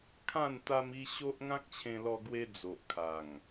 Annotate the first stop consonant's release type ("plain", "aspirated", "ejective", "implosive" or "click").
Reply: aspirated